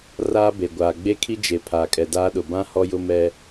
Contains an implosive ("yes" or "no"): yes